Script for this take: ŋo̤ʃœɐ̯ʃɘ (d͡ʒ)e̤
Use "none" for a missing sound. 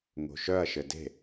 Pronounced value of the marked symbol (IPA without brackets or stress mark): d